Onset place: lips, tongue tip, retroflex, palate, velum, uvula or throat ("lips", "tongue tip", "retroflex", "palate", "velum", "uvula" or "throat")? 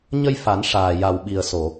palate